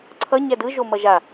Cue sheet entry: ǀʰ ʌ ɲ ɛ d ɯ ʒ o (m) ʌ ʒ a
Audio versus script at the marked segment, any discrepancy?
no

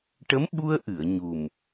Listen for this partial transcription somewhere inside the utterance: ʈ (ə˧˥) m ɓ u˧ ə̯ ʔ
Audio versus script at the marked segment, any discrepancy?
no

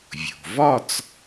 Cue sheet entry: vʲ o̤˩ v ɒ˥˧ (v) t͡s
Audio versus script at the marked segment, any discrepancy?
yes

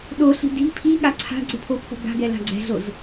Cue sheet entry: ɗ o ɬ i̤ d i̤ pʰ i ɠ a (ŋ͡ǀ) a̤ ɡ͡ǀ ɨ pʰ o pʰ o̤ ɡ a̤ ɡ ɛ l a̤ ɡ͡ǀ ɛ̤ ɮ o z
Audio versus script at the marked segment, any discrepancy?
yes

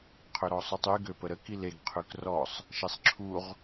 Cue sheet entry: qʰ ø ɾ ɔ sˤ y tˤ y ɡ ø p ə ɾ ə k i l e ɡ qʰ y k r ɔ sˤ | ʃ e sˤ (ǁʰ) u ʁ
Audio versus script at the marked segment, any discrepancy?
no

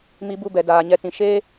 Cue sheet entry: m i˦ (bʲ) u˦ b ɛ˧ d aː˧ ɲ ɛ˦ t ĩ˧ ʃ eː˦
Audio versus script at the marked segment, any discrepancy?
yes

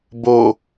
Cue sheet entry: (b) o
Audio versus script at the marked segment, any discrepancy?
no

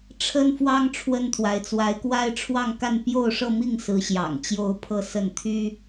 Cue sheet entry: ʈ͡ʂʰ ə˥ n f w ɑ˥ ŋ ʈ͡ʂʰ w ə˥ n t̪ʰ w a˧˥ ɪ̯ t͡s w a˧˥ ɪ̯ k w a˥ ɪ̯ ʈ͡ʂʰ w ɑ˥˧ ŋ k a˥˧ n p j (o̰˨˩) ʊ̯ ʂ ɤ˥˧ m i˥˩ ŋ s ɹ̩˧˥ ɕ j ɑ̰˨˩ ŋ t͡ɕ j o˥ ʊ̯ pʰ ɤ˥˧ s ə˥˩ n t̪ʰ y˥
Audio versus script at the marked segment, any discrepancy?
yes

